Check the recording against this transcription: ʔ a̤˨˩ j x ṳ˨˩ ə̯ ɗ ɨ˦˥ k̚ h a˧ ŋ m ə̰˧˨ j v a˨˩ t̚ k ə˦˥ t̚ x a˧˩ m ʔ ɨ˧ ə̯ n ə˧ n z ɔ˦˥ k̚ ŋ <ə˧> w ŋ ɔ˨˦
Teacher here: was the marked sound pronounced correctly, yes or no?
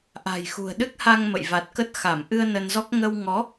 yes